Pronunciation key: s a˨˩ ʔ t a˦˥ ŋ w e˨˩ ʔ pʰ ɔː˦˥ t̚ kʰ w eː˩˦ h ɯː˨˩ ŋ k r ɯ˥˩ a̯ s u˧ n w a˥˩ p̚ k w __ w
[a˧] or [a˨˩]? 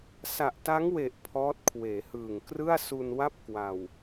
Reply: a˨˩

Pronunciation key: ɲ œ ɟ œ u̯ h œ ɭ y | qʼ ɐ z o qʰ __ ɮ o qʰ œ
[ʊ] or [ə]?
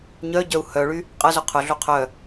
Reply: ʊ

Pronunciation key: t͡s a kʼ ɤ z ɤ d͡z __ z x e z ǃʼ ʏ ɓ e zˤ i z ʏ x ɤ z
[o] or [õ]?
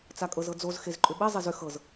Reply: o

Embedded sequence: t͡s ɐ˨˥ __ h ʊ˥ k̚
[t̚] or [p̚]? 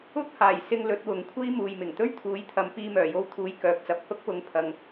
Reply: p̚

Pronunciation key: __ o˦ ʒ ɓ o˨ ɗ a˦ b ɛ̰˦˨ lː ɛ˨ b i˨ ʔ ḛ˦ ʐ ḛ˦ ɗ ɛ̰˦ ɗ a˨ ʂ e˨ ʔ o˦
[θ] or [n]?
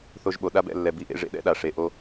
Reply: θ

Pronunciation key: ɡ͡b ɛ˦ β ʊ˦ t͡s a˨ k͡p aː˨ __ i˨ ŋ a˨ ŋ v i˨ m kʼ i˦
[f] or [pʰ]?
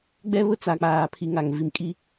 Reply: pʰ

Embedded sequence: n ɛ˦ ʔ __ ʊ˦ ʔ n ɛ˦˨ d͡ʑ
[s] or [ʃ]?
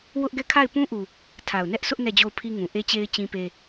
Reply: s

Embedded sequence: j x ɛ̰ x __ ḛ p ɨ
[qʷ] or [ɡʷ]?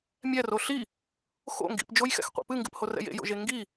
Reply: qʷ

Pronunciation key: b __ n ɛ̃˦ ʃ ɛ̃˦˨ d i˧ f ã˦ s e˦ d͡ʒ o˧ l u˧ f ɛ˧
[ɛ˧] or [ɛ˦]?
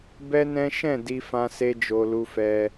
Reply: ɛ˦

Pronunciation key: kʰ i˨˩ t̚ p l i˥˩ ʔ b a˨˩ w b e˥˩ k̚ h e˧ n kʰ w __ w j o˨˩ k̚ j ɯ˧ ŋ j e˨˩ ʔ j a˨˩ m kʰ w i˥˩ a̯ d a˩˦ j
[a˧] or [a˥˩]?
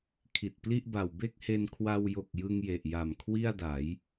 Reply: a˧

